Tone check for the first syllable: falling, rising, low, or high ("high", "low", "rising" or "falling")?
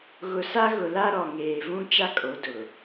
low